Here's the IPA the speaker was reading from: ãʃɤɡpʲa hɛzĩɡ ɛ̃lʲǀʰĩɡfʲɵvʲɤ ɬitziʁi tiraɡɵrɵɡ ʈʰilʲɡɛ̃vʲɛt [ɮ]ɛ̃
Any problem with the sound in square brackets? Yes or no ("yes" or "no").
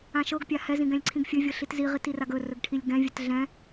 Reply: no